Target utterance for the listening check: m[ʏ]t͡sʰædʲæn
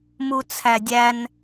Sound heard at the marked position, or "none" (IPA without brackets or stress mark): u